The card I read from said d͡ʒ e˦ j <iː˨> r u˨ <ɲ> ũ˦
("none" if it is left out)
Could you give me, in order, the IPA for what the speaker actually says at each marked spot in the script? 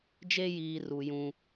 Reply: iː˨, j

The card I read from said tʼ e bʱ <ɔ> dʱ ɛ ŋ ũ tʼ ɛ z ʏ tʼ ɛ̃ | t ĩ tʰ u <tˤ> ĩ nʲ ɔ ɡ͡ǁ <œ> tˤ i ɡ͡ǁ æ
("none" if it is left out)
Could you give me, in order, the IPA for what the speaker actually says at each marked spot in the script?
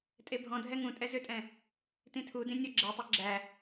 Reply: ɔ̃, d, ɛ

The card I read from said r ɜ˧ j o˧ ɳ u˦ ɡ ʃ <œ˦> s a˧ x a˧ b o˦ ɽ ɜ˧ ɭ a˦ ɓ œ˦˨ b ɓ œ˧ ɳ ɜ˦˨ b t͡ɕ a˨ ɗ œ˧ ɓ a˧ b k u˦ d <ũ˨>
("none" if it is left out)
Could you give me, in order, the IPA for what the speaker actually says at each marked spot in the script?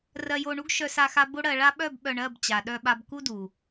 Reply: œ˧, u˨

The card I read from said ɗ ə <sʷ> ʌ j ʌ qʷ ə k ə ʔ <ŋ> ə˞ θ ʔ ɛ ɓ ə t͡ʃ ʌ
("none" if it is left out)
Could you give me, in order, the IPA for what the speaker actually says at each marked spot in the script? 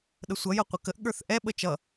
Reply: sʷ, ɠ

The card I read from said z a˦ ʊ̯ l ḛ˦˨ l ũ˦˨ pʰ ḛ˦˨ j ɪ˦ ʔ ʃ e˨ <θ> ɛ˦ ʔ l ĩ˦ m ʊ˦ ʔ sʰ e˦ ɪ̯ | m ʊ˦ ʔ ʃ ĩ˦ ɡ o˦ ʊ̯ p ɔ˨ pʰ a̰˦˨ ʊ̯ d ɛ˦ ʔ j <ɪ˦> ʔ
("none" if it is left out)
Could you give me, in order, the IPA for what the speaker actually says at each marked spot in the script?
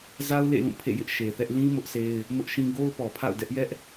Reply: θ, ɛ˦

